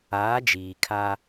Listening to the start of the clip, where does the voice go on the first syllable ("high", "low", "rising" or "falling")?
rising